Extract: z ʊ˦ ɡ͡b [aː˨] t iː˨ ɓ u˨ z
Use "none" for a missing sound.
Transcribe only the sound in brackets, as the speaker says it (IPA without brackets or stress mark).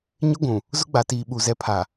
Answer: a˨